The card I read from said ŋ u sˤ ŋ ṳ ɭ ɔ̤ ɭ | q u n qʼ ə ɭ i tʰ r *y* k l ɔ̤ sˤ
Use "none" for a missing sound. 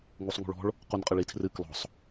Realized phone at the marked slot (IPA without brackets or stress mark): ɨ